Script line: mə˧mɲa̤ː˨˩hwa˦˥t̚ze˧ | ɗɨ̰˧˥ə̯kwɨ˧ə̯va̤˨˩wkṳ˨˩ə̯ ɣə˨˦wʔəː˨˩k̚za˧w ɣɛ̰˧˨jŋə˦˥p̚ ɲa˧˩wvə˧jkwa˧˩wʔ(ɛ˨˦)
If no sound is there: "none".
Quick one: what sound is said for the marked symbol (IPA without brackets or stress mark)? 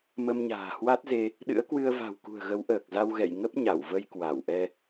ɛ˧